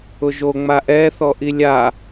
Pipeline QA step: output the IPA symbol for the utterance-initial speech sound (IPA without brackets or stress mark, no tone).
ʊ